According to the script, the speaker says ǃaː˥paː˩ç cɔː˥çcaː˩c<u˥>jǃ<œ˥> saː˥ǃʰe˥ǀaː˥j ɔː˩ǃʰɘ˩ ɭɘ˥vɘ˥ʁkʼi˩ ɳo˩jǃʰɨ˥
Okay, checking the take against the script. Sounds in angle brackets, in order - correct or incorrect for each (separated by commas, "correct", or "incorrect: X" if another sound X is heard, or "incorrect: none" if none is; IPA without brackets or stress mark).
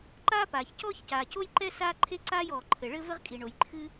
incorrect: o˥, incorrect: ɛ˥